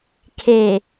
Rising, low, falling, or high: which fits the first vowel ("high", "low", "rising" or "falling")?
low